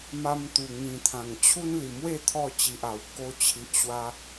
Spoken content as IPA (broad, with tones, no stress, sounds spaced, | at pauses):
m a˧ m t̪ u˨˩ ŋ ĩ˨˩ t̪ʰ ã˨˩ ŋ t͡ɕʰ u˦ n l i˨˩ m w e˥˧ t̪ʰ ɔ˥˧ t͡ɕ i˨ ʔ a˨˩ w k o˧ t͡ɕʰ i˨ ʔ ɕ w a˧